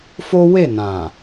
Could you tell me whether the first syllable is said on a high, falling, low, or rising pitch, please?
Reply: high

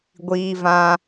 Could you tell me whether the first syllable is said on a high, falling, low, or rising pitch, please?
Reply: high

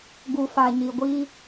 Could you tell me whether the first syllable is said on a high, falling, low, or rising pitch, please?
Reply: low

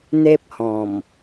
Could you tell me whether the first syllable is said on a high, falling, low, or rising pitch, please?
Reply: high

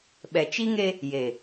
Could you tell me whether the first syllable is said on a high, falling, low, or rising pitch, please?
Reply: low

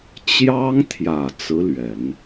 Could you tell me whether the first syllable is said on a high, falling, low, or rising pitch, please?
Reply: high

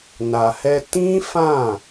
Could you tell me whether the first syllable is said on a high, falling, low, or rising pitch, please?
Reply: low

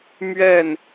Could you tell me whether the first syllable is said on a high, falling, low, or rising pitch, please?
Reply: falling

